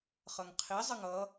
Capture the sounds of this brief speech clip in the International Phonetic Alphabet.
χ ʌ ŋ qʰ i zˤ ə ŋ ʌ

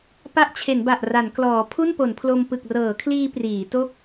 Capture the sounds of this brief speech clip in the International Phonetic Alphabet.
p a˦˥ ʔ t͡ɕʰ e˩˦ n b a˨˩ ʔ r a˩˦ n k l ɔː˩˦ pʰ u˥˩ n p o˩˦ n pʰ l o˧ m p ɯ˨˩ k̚ r ɤː˩˦ kʰ l iː˧ p r iː˩˦ t o˥˩ k̚

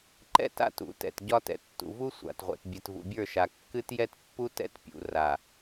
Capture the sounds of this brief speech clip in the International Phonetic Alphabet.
ǃ ɛ̰˦˨ t a̰˦˨ t ṵ˨˦ t ɛ̰˨ t ɟ ɒ˦ t ɛ̰˨ tː ṵ˨ v u˦ sʷ a̰˨ t ʁʷ ɛ̰˨ t bʲ ɛ˨ t v ṵ˨ bʲ ə˞˦˨ ʃ a˨ kː ɨ˦ t j ɛ˦ t pː u˦ t ɛ̰˦ t pʲ ṵ˨ r a˨

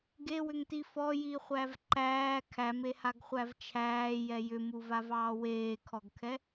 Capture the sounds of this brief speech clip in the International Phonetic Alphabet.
ɡ e w ʏ ŋ t i f ɔ j i χʷ æ v ǃ æː kʰ æ m e h a ɡ χʷ æ v t͡ʃʰ æː j ɛ j ʏ m u v a v ɑː w eː kʰ ɔ ɡ kʰ ɛ

